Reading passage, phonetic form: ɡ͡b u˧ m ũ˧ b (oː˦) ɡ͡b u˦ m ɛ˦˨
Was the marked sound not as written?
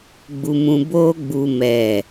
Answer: no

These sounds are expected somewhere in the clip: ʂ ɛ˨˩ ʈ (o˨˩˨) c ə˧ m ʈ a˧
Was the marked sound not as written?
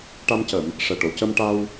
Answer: no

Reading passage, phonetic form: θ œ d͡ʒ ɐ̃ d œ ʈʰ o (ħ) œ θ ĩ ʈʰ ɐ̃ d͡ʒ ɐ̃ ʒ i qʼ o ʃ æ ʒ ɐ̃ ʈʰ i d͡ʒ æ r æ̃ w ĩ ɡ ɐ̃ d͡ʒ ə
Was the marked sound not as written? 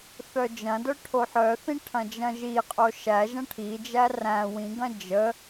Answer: no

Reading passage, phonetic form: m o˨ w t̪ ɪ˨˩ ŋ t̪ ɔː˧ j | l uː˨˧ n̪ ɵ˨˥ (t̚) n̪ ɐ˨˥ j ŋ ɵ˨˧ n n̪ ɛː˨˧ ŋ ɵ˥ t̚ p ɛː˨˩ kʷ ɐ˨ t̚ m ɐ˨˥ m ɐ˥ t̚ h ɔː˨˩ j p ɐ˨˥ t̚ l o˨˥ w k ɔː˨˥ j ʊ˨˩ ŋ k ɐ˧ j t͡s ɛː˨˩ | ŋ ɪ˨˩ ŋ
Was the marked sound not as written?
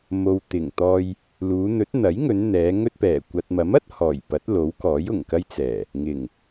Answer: no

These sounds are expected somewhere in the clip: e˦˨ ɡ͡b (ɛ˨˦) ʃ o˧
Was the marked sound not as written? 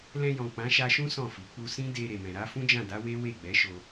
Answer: no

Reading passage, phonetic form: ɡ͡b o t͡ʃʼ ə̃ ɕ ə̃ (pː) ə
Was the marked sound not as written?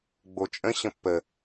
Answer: no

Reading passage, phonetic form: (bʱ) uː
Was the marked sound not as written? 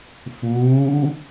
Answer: yes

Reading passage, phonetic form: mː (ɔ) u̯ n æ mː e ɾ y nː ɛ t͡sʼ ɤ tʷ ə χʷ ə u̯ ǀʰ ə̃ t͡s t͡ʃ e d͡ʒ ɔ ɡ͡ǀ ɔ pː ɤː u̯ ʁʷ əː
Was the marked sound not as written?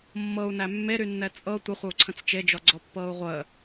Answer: yes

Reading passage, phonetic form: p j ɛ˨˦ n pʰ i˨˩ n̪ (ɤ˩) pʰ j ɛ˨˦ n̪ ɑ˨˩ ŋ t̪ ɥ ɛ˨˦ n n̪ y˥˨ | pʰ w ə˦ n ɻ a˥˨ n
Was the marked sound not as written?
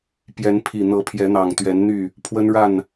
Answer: yes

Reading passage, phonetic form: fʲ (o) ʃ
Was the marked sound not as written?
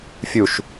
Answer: yes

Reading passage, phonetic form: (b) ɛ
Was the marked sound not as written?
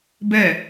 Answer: no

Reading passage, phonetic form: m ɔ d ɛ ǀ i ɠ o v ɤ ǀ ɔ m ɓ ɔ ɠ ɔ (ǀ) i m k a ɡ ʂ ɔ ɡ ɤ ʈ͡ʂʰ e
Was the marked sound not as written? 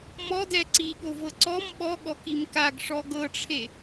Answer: yes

